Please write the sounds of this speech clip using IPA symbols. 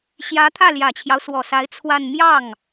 ɕjä˧˥t̪ʰä˥˩ljä˨˩t͡ɕʰjɑ˦ʊ̯ swɔ˨˩sa˧˥ɪ̯ t͡sʰwa˥˧n mjɑ˥˩ŋ

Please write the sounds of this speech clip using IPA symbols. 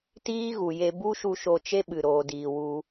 tiː˦ɣu˨je˧ bu˦ʃu˧ʃo˧ t͡ʃe˦ɓɨ˨ ɾoː˨diː˨ wu˧

